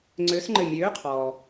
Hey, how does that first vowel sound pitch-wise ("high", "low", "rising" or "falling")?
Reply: rising